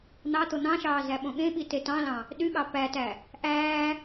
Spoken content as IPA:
n̪ ɑ t̪ o n̪ ɑ̃ ʃ ɑː z æ ɓ õ ɠ ẽ ɓ i t e t ɑ̃ l ɑ̃ | ɗ y ɠ ɑ p æ t æ | ʔ æː

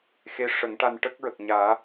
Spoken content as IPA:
x e˧˥ ʂ ə˨˩˦ ŋ ʈ a˧ n ʈ ə˦˥ k̚ ɹ ə˨˩ k̚ ɲ aː˨˩˦

